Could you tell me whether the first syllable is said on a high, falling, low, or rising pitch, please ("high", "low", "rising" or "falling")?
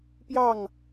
falling